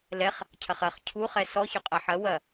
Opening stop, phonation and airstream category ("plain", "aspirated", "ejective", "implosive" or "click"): aspirated